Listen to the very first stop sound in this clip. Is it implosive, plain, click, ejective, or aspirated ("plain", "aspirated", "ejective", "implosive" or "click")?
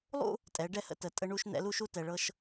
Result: ejective